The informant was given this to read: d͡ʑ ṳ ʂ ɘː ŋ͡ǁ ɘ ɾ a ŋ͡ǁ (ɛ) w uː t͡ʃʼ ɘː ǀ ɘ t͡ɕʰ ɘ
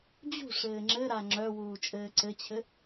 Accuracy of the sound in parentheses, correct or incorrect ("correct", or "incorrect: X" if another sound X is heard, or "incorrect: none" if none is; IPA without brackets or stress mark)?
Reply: incorrect: œ